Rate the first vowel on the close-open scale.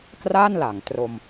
open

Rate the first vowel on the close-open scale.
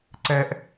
mid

